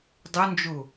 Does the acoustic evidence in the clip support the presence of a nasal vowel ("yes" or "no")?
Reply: no